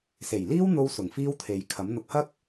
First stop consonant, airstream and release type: aspirated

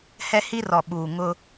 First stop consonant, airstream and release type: implosive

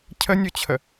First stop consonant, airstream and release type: aspirated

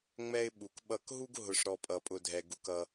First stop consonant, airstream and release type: implosive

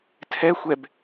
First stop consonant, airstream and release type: aspirated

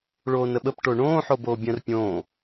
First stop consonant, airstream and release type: implosive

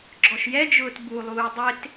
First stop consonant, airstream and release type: click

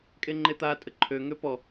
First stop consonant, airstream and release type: ejective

